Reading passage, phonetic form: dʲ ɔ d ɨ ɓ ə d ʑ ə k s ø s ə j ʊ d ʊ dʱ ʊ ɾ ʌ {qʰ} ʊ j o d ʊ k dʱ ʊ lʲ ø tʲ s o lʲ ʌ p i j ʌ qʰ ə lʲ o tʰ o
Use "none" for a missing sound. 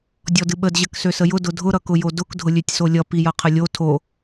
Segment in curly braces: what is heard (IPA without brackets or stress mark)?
k